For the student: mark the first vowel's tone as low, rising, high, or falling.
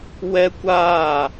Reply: high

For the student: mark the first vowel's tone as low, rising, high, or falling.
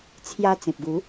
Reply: high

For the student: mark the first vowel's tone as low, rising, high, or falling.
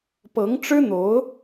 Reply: rising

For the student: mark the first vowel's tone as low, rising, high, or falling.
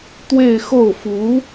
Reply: falling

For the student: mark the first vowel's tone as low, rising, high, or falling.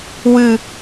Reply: falling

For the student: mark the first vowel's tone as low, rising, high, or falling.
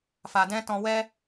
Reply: low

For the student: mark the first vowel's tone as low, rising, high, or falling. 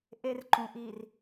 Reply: high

